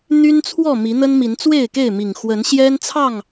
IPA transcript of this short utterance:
n̪y˦nt͡sʰwɔ˥˨ mi˨˦n̪ə˦nmi˨˦n t͡swe˥˨ɪ̯ke˥˨ɪ̯mi˨˩ŋ xwə˨˦nɕjɛ˦nt͡sʰɑ˥˨ŋ

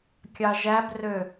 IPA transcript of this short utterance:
kʲɑʒæbrø

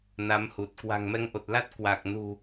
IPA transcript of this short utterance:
na˨˦mhu˨˩t̚ kwa̤˨˩ŋmɛ˧ŋʔo˨˩t̚la˦˥t̚ kwa˨˩k̚nṳ˨˩

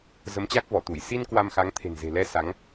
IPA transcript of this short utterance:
zə˨˦mt͡ɕa˦˥k̚vɔ˧˩t̪u˧˩j si˧n kwa˧mxa˨˦ŋ t̪ʰe̤˨˩nze̤˨˩lɛ˧ sa˨˦ŋ

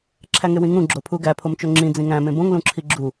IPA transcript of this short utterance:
ǁʰæŋewĩŋũ ɡ͡ǁopʰuɡæ pʰomt͡ʃoŋ͡ǁĩ d͡zĩŋæ̃ mẽbõŋ lũǁʰiɡ͡ǁu

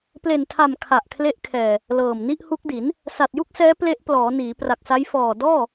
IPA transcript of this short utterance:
ple˨˩ntʰa˨˩m kʰa˨˩ʔkʰle˦˥ʔkʰɛː˨˩ | lɤː˨˩mni˥˩ʔhu˦˥k̚di˩˦n | sa˨˩t̚ju˥˩k̚sɛː˦˥ ple˦˥ʔplɔː˩˦niː˩˦ pra˨˩k̚sa˦˥j fɔː˨˩ dɔː˥˩

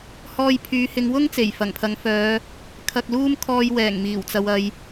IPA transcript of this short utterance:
hɔː˧jpʰyː˨˧hɪ˨˧ŋwʊ˥ŋ t͡se˨˩jfɐ˨˩ŋpʰɐ˨˧ŋfœː˨˧ | kʰɐ˧k̚luː˥m kʰɔː˧jwɛː˨˩ŋ miː˨˩wt͡sɐ˨wɐ˨j

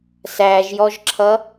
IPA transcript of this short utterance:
sæʒjɔʒǁʰʌ

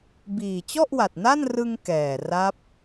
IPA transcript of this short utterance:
biː˨˩ t͡ɕɔ˥˩ʔwa˨˩t̚ na˥˩nrɯ˧ŋ kɛː˨˩ ra˦˥p̚

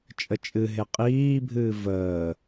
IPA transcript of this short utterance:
t͡ʃʼət͡ʃʼɨɦe qʼiːbʱɨː vəː

